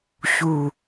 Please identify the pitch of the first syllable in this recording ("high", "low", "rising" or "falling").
low